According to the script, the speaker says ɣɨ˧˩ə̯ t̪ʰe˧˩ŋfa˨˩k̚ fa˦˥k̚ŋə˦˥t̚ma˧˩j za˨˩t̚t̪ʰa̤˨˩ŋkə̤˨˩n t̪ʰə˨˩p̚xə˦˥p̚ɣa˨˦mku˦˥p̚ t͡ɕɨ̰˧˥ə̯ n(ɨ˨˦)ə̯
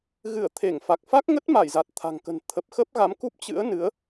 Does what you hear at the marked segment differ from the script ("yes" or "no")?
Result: no